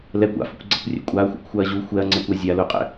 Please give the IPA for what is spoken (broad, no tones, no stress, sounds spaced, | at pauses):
l ɛ kʷ a̰ f ʊ kʷ ɡ͡ǀ ɛ kʷ rʲ ɛ̰ kʷʼ a ɐ̯ xʷ a̰ kʷ xʷ a ɐ̯ ʑ u xʷ ɛ ɐ̯ ŋ͡ǀ ɛ kʷ a zʲ a l ʊ qʼ ɛ̰